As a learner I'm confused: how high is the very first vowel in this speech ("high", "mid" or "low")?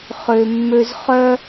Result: mid